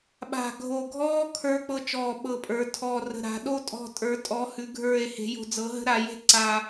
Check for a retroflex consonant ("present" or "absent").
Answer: absent